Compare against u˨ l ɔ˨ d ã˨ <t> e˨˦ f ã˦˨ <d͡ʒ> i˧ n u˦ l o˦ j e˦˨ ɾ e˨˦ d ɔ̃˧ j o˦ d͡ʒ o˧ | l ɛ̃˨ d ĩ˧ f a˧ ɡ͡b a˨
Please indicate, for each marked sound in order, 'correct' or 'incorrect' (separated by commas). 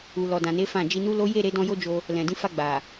incorrect, correct